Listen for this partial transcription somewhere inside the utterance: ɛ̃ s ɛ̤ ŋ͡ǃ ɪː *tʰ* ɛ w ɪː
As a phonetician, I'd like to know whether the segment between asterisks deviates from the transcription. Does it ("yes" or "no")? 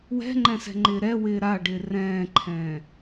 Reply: yes